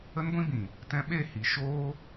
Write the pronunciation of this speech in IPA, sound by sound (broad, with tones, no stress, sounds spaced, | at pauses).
ə˦ n ɡʷ ĩ˦ b ĩ˨ | t ɛ̃˧ ɓ e˦˨ h i˨ ʃ oː˦